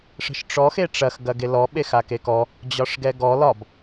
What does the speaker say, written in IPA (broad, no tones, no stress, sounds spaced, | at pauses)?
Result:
ʂ ə̤ ʃ ʈ͡ʂ ɔ x e ʈ͡ʂ ɐ x ɡ ɐ ɡ e l ɔ ɓ e x a k e k ɔ | d͡ʑ ɒ ʂ ɡ ɛ ɡ ɔ l ɒ b